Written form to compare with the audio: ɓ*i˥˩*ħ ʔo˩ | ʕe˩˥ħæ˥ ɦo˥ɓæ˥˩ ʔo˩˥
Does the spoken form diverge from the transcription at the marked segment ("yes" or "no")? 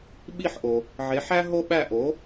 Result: no